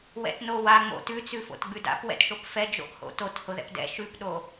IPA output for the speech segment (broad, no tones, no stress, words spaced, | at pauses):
wɛ̰tnowa ŋ͡mo̰ tʉt͡sʉ fo̰tɡ͡bʉda̰p wɛ̰tʃopfɛ d͡ʒo̰ʔho̰tot hʊðɛ̰pdɛ̰ ʃʉpɗo